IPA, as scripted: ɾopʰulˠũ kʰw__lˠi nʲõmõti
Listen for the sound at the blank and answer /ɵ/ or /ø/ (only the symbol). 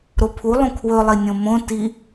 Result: ɵ